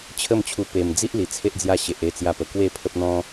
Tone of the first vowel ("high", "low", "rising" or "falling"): falling